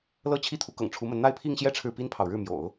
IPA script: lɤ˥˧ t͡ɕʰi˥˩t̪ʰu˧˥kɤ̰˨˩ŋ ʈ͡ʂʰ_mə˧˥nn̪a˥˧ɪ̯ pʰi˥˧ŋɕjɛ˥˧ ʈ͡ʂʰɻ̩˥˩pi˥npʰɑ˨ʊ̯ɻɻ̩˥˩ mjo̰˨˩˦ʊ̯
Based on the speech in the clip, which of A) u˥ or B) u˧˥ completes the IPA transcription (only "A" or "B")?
B